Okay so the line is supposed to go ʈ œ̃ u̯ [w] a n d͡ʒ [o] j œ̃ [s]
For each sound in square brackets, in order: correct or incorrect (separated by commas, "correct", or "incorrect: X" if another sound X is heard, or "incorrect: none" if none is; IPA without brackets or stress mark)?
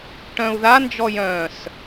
incorrect: ð, incorrect: ɔ, correct